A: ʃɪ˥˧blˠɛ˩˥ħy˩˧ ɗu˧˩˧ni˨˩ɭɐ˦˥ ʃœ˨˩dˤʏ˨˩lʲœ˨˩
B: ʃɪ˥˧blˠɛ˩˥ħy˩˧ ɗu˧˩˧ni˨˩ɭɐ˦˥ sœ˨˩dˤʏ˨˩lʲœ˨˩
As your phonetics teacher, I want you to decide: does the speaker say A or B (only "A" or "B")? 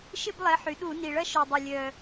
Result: A